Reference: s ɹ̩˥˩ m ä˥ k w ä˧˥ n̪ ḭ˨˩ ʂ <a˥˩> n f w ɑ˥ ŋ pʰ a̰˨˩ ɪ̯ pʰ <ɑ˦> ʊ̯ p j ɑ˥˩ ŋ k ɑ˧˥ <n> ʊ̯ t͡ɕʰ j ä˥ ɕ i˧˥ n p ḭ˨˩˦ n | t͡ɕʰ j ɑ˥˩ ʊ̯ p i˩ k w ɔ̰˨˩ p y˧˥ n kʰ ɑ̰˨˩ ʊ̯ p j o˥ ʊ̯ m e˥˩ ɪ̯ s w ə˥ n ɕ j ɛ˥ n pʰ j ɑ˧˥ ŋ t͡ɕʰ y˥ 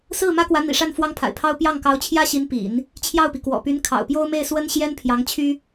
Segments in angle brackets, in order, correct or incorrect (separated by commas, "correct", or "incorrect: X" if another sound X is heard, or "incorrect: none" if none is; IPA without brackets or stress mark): correct, incorrect: ɑ˥, incorrect: none